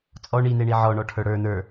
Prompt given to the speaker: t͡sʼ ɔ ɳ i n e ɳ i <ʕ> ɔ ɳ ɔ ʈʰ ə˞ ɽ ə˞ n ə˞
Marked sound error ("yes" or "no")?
no